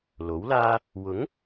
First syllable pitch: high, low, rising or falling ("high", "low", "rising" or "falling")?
rising